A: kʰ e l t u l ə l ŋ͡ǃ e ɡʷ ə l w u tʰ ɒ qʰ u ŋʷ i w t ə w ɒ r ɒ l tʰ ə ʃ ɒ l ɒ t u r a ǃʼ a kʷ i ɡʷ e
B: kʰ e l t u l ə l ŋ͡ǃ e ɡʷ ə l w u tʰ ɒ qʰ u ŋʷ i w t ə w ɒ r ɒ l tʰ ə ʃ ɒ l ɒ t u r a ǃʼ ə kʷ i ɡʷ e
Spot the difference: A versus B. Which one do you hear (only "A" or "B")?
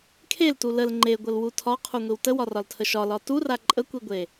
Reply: B